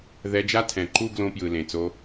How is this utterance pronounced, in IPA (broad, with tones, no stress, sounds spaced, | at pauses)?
ð ɛ˧ d͡ʒ a˦ tʰ ɛ̃˨ ǃ u˦ ɡ l õ˧ p j ɯ˨ l ẽ˨ t͡s o˧